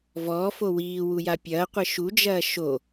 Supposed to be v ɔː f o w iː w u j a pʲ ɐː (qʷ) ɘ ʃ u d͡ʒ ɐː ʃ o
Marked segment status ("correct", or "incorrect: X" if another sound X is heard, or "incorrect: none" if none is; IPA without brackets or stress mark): correct